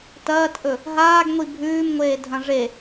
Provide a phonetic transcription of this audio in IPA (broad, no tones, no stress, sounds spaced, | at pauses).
t ɐː t ʔ ɵ | ɦ aː ɡ ŋʷ i bʱ ʉː m ŋʷ eː dʱ ɐ̃ ʐ e